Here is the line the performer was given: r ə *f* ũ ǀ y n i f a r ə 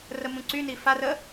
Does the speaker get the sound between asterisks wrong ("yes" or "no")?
yes